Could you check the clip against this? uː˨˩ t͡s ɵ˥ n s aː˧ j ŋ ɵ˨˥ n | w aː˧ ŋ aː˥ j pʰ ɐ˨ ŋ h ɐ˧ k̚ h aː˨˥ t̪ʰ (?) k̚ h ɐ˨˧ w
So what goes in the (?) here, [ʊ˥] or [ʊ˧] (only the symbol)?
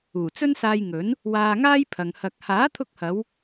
ʊ˧